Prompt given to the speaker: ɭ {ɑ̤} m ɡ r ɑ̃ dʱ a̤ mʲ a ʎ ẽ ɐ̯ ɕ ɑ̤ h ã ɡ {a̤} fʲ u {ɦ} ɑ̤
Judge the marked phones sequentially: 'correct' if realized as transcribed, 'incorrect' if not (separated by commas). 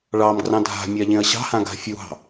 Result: incorrect, correct, correct